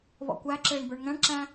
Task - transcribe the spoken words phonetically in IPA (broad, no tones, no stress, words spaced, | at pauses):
βɔ̰kʷæǁɪːɳ bə˞ɳŋæ̃ɳǁæ̃